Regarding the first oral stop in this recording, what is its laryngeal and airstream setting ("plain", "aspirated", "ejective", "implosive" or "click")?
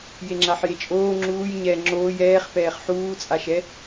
click